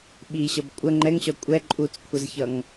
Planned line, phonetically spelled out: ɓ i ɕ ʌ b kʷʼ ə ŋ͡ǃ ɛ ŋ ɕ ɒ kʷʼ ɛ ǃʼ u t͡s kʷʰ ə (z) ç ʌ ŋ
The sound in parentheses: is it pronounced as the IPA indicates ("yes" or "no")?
yes